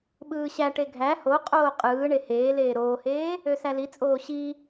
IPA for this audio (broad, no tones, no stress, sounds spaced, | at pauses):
ɓ ɯː ɕ æ ʈ e ɡʱ æ h o qʼ oː qʼ ɯː ɳ e h eː l eː ɾ oː h eː | ø s æ l i t͡sʼ oː ɕ i